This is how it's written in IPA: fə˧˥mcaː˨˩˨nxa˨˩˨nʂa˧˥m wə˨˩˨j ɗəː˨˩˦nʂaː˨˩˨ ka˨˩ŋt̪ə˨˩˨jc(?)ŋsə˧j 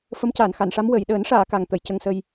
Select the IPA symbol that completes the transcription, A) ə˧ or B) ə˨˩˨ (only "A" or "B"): A